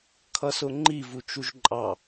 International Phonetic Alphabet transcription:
kʰ ʌ s ʊ ŋ͡ǃ i v u t͡ʃ u ʒ ǃʼ ɑ

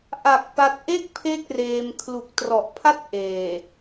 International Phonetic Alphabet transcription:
ʔ a˨˩ k̚ p a˦˥ t̚ ʔ e˥˩ k̚ pʰ e˦˥ k̚ r eː˧ m kʰ l u˨˩ k̚ t r ɔ˨˩ ʔ pʰ a˥˩ t̚ ʔ eː˨˩

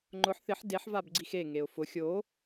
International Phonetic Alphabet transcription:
ŋ͡ǃ ʊ ħ θ ɪ ħ d e ħ v a b ɡ͡ǀ i x e ŋ e ʊ̯ f ʊ xʲ o

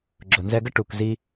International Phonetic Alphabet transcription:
ɡ͡ǁ ʊ˨ n z ɛ˧ ɡ ə˦ ʈ u˨ k z i˦

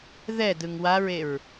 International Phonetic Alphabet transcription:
ð ɛ d ɯ ŋ w a ɹ e ɹ

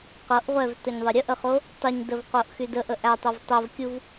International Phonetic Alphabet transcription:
q ɤ ʔ ʁʷ ɛ v t ə ɲ ðˤ ə ɾʲ ə ʔ ə χ o | tˤ ə ɲ d ə v q o ʔ x y d ə ʔ ə ʔ æ tˤ ɤ v tˤ o v kʲ u v

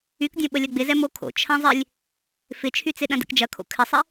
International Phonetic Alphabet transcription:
y k dʲ õ ɓ ə lʲ ɐ ɡ͡b ɪ z ɛ m o kʰ o̰ t͡ʃʰ ɐ̃ zˤ ɪ lʲ | f ɪ t͡ʃʰ y t͡s ɪ ɗ ɐ̃ d ɛ̰ k d͡ʒ ɐ kʰ o̰ kʰ ɪ sˤ ɪ

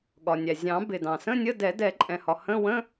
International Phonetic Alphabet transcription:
ɠ ɒ˩ nʲ æ˩ zʲ ɑ̃˨˩˦ b ɪ˩ d ɑ̃˩ s ə̃˧˥˧ nʲ ə˧˥˧ d ɛ˨˩˦ d ɛ˨˩˦ ǃʼ ɛ̃˩ h ɒ˩ h ə̃˧˥˧ w ə̃˧˥˧

